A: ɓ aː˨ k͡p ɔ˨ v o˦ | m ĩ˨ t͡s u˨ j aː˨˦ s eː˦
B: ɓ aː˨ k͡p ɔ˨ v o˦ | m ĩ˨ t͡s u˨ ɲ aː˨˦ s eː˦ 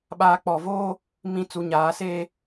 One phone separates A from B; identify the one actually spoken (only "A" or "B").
B